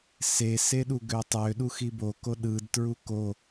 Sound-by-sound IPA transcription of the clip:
seseɗu ɡøtˤø ɗuxiboko ɗɯd tɹuko

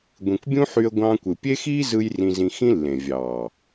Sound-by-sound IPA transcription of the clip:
ɡʷĩ˨kʷbʲũ˦ħy˧ə̯ ɡʷɑ̃ː˧kʷɯ˨ pʲe˦xiː˦ zɯ˦jrĩ˧zĩ˧ xĩ˦lːẽ˨ vʲɑː˨

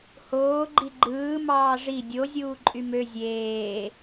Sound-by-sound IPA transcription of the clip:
hoː ɡ͡ǃiɡ͡ǃɯː mɑːʐi dʲo zʲuːǃʼymø zʲeː

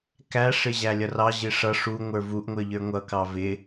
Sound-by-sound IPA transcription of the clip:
kæʂɪ ʑælʲʌrɑ ʑɪʂʌ ʂu ŋʷə˞vuʔŋʷə˞ʎə˞ ŋʷʌkɑ vɪ

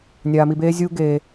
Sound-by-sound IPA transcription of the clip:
nʲaː˧mi˧beː˦ zʲuː˦ɡeː˧

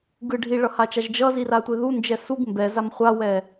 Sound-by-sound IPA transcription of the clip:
ɡɯ ɖʱiɭʌhat͡ʃaʒ d͡ʒʌziratʷe ðund͡ʒɛ suɡ mbɛzam χʷawɛ

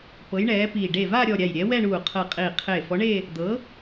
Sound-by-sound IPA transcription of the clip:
pɤ˨˥jɳɛː˨˥piː˧˩ ɖe˧˩ vaː˥˧ɾʲɔ˧˩ ɾʲa˧˩jɾʲɛ˨˥wɛ˥˧ɳuː˧˩ qʰɤ˧˩qʼiː˧˩ qʰeː˧˩fɔ˨˥ɳe˥˧ | d̪ɤ˨˥

